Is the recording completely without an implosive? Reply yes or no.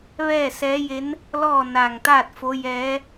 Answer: yes